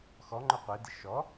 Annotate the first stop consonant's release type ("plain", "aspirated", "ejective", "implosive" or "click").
click